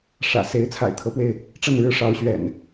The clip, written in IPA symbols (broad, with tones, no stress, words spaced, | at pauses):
ʂä̰˨˩ se˨˦ɪ̯t͡sʰa̰˨˩ɪ̯t̪ʰɤ˨˦pwe˧ɪ̯ | ʈ͡ʂə˥˨nɻɻ̩˦ ʂɑ˨˦ʊ̯ɕɥɛ̰˨˩n